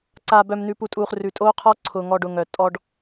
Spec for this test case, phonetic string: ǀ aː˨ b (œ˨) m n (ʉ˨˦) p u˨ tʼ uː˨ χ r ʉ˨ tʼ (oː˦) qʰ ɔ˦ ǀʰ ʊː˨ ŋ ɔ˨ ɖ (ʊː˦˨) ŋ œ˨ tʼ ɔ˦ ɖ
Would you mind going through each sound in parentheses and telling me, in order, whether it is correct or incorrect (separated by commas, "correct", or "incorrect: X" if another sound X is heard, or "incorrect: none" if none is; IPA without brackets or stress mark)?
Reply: correct, incorrect: ʉ˨, correct, incorrect: ʊː˨